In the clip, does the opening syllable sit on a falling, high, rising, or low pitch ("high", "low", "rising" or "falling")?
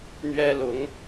high